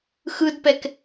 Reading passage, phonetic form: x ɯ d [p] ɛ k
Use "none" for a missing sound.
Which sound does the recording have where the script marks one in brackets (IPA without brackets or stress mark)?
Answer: p